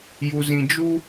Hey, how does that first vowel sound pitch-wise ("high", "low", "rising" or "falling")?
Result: low